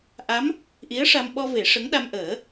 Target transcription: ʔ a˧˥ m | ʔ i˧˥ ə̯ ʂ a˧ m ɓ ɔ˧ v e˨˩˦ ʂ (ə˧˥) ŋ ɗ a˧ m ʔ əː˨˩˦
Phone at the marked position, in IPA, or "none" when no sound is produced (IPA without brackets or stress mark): ə˧˥